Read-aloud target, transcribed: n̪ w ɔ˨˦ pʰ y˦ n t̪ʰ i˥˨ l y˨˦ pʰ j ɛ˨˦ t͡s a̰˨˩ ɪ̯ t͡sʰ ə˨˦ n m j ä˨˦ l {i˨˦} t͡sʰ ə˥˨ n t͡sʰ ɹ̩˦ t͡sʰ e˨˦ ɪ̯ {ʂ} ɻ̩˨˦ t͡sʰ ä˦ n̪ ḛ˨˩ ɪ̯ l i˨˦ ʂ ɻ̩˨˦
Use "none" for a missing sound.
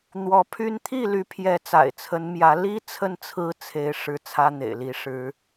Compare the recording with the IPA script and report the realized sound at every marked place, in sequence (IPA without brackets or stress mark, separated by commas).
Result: i˦, ʂ